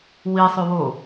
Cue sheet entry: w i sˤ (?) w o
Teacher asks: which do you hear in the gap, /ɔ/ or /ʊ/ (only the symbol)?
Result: ʊ